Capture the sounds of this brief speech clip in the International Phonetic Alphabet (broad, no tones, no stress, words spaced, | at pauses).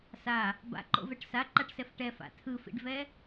sa | ba̰ǃo̰vɛʈ saǃaʈsɛf ʈɛfa̰ tʰɯfḭɖvɛ